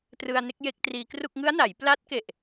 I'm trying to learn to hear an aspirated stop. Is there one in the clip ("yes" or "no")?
no